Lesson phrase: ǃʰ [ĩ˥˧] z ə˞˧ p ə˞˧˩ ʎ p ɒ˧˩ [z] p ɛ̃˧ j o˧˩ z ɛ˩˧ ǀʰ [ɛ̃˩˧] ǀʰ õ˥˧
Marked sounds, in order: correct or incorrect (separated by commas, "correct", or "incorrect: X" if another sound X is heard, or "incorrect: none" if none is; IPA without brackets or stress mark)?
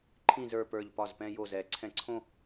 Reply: correct, correct, incorrect: ɛ̃˧